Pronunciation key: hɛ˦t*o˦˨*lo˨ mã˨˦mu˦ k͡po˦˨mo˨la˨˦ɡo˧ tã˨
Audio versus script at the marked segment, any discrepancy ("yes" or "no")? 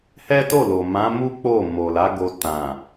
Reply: no